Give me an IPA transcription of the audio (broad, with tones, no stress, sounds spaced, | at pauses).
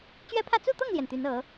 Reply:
t͡ɕ ɥ ɛ˥ pʰ ä˥˧ t͡s u˥˧ t̪ ɤ˥˩ ŋ l j ɛ˩ n t̪ y˧˥ n ɤ˧˥